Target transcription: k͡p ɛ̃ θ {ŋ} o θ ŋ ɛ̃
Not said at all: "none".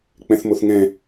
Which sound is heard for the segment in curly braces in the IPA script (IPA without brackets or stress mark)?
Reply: m